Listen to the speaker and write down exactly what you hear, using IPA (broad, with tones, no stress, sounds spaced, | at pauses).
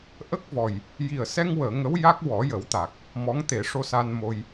ʔ ə˦˥ k̚ v ɔ˨˩ j | j i˨˩ ə̯ s ɛ˧ ŋ w əː˨˩˨ ŋ ə˧˥ w j a˦˥ k̚ w ɔ˨˩˦ j ə˨˩˦ w t̪ a˨˩ k̚ | m ɔ˧˥ ŋ t̪ e˨˩˦ ʂ o˧ s a˧ n m o˧ j